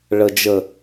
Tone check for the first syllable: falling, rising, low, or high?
low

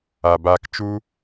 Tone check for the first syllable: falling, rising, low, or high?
low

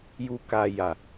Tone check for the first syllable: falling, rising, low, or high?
high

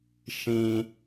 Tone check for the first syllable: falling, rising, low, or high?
high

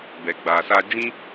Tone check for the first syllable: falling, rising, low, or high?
low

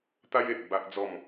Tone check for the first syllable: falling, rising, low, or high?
high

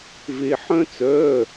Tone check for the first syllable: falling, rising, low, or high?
high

